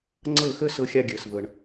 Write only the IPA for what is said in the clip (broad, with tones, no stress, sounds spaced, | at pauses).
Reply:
ŋ͡ǀ ɤ˥˩ x ə˥ s ɤ˥ xʲ a˥ ɡʲ əː˩ s v ɤ˩ ɳ